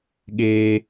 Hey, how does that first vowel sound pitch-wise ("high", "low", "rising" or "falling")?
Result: high